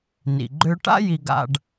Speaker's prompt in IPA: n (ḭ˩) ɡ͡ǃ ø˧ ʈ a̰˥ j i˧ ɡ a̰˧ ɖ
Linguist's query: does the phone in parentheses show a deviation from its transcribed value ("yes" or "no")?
no